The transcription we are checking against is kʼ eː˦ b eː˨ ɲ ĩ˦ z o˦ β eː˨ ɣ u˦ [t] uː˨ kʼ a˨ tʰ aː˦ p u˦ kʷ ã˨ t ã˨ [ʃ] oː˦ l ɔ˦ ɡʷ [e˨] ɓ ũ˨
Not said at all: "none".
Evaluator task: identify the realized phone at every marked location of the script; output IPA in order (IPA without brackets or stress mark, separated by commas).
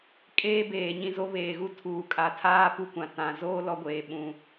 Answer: tʰ, z, eː˨